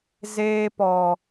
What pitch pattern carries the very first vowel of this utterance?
high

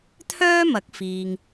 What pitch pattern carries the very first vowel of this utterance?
high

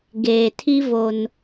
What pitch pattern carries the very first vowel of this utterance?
low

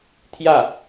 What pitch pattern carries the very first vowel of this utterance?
falling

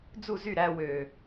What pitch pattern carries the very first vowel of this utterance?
falling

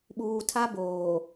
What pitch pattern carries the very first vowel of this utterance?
low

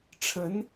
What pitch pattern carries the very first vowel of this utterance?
rising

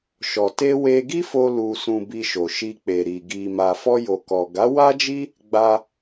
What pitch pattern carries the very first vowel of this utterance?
low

